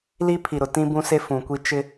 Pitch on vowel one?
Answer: high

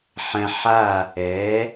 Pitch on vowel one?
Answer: low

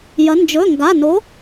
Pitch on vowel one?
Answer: rising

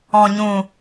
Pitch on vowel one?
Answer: low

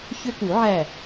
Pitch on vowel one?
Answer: high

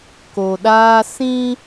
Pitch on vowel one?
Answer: low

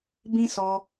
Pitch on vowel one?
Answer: high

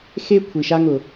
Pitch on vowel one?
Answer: high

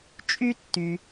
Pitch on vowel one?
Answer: high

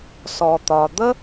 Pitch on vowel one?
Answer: low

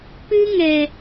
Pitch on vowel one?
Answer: high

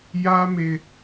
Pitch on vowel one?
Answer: high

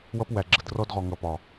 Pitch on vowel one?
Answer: high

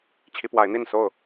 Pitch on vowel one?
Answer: rising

